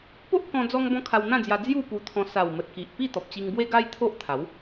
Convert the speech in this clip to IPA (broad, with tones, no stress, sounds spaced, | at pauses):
p o˦ ʔ k ɔ̃˦ d͡z ɔ˦ ŋ b ɔ̃˦ kʰ a˧ w n̪ ã˥˧ d͡z j a˧ d͡z j u˥˧ p u˧ t̪ʰ ɔ̃˧ s a˨˩ w m ə˨ t̚ k i˨ ʔ p i˥˧ t̪ ɔ˨ p̚ t͡ɕ i˧ ŋ b w e˦ ɡ a˦ j t̪ʰ o˦ ʔ t̪ʰ a˨˦ w